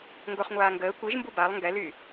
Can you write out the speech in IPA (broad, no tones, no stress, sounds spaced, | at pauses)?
ŋ ɡ o χ ŋʷ aː ŋ ɡ əː kʷ i ʒ m b u b a lˠ ŋ ɡ ɛ l y